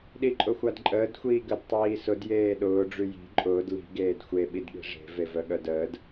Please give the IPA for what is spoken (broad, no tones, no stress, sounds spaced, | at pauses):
ɗ i ǃʼ ʊ xʷ a d ǃʼ əː d xʷ iː ɡ ə d tˤ iː s ʊ d j eː ɗ ʊː ɖ͡ʐ y j i̤ ǃʼ ʊː d l i̤ ɡ eː d xʷ e ɓ i d ɠ i̤ ʐ e̤ v e v œ ɠ œ d əː d